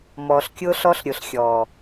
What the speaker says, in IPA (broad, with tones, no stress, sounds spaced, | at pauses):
m ɔː˨ ɬ kʲ ʊː˦ ɬ ɔ˦ ɬ ɾʲ ʊ˨ ɬ xʲ ɔː˨